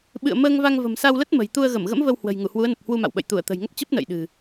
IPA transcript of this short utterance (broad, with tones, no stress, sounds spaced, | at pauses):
ɓ ɨ̰˧˨ ə̯ m əː˧ ŋ v a˧ ŋ v ə̤˨˩ m s a˧ w l ə˦˥ t̚ m ə̤˨˩ j t̪ u˧ ə̯ ɣ ə˧˩ m ɣ ə̰˧˥ m v ə˧ w h w ə̤˨˩ j ŋ u˧˩ h w u˨˦ ə̯ n ə˨˩ p̚ h w u˧ m a̰˧˨ w ɓ ə̰˧˨ j t̪ u˧˩ ə̯ t̪ ə̤˨˩ j ŋ ə˦˥ p̚ t͡ɕ ə˦˥ p̚ n ə̰ː˧˨ j ɗ ɨ̤˨˩